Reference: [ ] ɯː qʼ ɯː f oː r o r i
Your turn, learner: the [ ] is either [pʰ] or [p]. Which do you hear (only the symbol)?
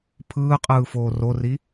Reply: pʰ